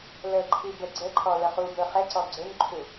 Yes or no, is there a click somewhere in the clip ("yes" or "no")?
yes